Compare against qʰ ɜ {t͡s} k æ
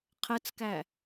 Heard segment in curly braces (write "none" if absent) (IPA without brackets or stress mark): t͡s